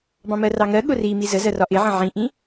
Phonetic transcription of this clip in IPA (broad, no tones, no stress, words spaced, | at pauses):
bɑ̃mɜrɑŋɜ ɠʊri mizəzɜ rɒʔɪʕə̃ ʕĩʔĩ